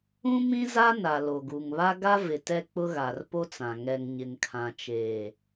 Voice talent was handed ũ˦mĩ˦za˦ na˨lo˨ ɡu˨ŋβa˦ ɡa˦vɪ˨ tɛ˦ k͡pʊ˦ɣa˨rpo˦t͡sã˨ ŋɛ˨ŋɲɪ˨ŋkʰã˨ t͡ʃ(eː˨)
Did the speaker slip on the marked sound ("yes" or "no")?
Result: no